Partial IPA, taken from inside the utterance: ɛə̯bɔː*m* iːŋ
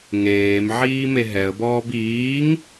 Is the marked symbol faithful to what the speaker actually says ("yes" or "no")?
no